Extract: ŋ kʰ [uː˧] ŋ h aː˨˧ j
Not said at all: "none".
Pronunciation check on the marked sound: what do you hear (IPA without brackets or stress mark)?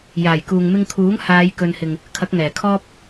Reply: uː˨˥